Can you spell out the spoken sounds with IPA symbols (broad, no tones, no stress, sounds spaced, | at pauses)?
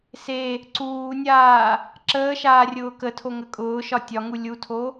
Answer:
s e | ǀ uː nʲ aː | ǁ əː ʃ aː rʲ ʊː k ə tʰ o ŋ ə kʼ ʊː ʃ ɒ tʲ ɒ ŋ u lʲ u tʰ o